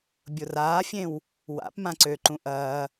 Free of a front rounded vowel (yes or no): no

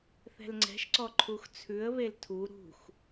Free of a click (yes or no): no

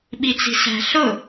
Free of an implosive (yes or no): no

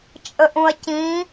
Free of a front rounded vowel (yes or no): yes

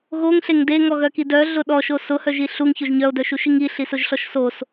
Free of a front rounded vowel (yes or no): no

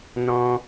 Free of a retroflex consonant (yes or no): yes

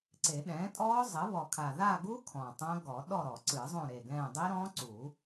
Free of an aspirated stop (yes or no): no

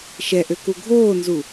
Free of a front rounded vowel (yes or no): no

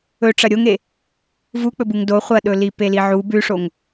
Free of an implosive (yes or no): no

